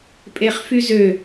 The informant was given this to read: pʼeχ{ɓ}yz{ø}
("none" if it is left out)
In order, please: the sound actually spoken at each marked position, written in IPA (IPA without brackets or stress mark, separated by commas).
f, ø